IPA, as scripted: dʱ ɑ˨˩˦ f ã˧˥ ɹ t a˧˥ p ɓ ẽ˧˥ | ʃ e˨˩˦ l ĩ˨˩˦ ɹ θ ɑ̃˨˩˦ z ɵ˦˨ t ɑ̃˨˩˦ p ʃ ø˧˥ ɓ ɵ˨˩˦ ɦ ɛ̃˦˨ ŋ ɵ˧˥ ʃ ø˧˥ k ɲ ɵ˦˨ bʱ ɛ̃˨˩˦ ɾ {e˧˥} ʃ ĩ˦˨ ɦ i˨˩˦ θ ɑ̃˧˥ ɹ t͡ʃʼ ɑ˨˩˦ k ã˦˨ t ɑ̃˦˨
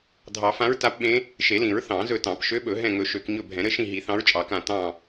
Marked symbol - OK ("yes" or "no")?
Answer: no